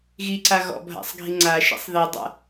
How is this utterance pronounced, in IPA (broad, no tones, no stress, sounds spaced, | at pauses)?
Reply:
ɣ i ǀ a ɣ ɔ̰ bʱ a̰ sˤ ɡʱ i ŋ͡ǀ a ʃ ḭ sˤ ð i dˤ a̰